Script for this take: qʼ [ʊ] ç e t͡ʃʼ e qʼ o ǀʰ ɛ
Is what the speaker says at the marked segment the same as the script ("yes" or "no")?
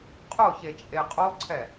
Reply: yes